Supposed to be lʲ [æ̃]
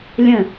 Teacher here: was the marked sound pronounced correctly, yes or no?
no